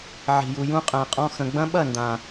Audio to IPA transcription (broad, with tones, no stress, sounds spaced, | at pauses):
ʕ i̤˨ j u˨ j ũ˦ qʼ æ̃˨ qʼ ɔ̃˧ x ə̃˨ ɡ͡b ɐ̃˦ ɓ ɐ˦˨ n d ã˨